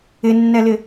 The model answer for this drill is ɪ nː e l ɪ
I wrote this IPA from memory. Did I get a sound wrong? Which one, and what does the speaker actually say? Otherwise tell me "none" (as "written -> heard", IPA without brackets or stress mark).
e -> ɛ